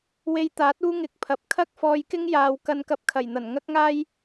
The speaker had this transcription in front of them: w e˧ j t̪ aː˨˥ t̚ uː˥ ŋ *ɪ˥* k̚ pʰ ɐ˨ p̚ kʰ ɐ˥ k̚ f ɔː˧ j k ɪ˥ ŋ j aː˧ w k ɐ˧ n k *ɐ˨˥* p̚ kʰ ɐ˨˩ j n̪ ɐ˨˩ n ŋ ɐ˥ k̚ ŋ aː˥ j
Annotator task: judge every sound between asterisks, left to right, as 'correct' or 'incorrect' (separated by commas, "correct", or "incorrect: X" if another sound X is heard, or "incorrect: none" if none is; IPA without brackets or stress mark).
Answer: incorrect: ɪ˧, incorrect: ɐ˧